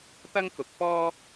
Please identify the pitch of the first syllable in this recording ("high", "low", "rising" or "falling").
high